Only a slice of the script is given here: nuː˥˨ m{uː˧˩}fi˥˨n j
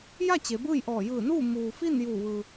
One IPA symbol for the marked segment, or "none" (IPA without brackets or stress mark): uː˩